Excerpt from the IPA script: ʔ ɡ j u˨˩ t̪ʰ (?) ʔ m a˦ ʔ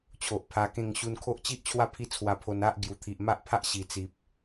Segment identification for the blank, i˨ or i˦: i˨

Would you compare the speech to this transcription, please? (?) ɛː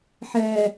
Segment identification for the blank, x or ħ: ħ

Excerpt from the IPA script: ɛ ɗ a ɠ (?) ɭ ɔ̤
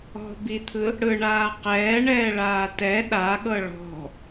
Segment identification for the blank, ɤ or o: ɤ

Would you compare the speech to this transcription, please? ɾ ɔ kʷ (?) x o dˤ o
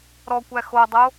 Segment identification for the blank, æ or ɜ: æ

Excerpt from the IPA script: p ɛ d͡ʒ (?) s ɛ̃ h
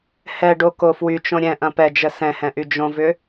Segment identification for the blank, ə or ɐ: ə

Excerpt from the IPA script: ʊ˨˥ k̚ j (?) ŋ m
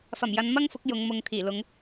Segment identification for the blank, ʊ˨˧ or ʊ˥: ʊ˨˧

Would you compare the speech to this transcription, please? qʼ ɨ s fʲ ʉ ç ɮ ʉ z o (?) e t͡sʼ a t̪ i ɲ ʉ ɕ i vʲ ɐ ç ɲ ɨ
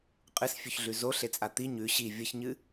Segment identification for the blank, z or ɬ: ɬ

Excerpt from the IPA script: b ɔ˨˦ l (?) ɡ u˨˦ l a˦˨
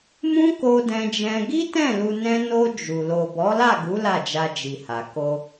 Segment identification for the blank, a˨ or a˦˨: a˦˨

